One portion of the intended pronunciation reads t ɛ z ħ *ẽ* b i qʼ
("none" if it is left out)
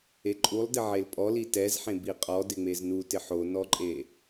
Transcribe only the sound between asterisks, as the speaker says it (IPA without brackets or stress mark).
ẽ